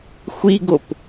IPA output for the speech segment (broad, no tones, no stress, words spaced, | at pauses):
xʷiɡop